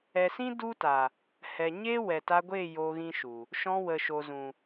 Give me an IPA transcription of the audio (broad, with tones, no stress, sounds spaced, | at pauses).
ɛ˨ s ĩ˦ d u˦ t a˨ | h ɛ˨ ɲ e˦ w ɛ˨ t a˧ ɡʷ e˦˨ j o˧ ɣ ĩ˦ ʃ u˨ | ʃ ɔ̃˧ w ə˨ ʃ o˨ z ũ˨